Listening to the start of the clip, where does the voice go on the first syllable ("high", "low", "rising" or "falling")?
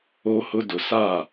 low